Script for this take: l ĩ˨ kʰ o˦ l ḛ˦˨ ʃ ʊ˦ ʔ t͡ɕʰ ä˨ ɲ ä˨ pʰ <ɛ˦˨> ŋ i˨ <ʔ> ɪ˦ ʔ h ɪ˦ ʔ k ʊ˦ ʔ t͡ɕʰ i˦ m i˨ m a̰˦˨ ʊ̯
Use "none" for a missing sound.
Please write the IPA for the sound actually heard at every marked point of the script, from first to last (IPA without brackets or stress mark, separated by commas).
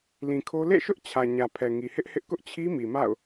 ɛ˨, h